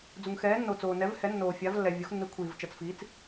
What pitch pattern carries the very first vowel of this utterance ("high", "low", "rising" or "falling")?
low